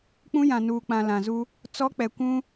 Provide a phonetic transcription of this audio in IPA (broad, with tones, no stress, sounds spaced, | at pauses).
k͡p ũ˦ j ã˨ n uː˨ k͡p ã˨ l ã˨ z u˦ | t͡s ɔ˦ k͡p ɛ˨ kʷ ũ˦